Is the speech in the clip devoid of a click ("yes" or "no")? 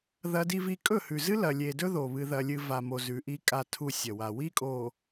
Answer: yes